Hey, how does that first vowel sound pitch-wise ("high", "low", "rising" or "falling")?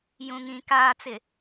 low